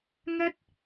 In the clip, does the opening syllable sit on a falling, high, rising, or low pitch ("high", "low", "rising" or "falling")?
high